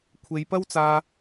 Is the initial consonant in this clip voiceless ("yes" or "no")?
yes